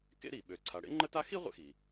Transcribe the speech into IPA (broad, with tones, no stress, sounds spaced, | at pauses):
k ḛ˥ ɾ i˩ ɓ ø˩ ǀʰ a˩ ɽ ḛ˥ ŋ͡ǃ ə˥ t a˥ x i˥ ʁʷ ḛ˥ x i˩